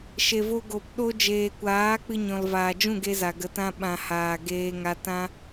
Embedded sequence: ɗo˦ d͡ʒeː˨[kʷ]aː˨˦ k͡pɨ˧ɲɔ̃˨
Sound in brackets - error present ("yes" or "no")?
no